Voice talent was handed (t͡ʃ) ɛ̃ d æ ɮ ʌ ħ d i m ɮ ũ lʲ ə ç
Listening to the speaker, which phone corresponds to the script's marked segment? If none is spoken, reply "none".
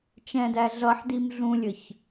t͡ʃ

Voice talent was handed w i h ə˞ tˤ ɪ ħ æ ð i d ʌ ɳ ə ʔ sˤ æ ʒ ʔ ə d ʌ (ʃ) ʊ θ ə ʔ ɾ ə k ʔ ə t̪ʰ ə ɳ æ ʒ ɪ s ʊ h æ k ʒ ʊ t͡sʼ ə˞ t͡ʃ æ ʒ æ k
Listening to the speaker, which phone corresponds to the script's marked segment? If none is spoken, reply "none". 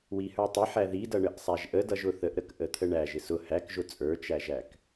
ʒ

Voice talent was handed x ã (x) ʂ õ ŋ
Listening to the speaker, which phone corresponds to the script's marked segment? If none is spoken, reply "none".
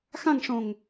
ŋ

